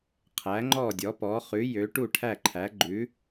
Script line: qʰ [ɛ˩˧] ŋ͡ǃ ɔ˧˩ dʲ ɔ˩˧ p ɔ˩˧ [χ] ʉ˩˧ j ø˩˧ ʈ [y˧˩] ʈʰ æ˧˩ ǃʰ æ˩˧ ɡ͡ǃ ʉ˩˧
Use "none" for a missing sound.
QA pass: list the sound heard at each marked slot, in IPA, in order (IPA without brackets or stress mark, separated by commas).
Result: æ˩˧, χ, u˧˩